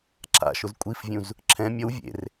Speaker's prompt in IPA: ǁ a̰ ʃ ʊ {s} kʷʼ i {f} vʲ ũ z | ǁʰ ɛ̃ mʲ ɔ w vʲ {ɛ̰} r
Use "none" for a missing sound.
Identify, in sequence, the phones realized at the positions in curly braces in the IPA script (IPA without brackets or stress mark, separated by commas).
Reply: z, f, ḛ